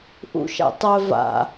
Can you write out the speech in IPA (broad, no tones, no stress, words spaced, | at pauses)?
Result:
ʔṵʃa̰ tˤœ va̰